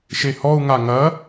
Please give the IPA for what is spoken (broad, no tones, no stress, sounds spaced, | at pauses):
ʃ e h ɔ u̯ ŋ a ŋ ɐ